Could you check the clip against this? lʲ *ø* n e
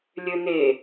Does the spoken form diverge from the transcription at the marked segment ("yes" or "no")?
no